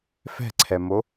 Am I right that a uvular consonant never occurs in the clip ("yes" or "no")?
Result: yes